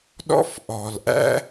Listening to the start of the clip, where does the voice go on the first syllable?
high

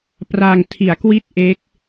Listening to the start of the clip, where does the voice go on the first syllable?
low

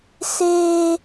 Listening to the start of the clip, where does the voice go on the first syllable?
high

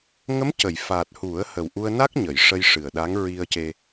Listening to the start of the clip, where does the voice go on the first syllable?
rising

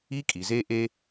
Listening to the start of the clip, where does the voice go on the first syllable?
high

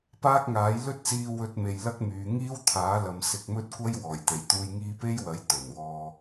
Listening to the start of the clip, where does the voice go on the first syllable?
high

